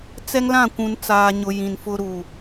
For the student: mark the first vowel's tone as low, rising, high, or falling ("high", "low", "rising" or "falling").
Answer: high